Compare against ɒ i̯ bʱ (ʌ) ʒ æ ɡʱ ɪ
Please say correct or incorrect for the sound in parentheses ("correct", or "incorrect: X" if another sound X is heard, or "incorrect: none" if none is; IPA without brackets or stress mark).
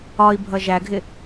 correct